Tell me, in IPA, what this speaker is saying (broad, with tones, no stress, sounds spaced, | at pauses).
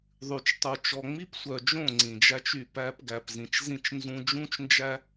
ðˤ ʉ˨ t͡ʃ tˤ u˨ t͡ʃ ɔ˨ ŋ͡m i˦ p sʷ œ˨ d͡ʒ õ˦˨ ŋ͡ǀ ĩ˨ d͡ʒ æ˦ t͡ʃ y˦˨ p æ˦ p ɡ æ˨ p z ĩ˨ t͡ʃ z ĩ˦˨ t͡ʃ n z ũ˦ d͡ʒ ũ˦ t͡ʃ n d͡ʒ æ˦